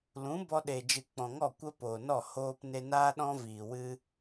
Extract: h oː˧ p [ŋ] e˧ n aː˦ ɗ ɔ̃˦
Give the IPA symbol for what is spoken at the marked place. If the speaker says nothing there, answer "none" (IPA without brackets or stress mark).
n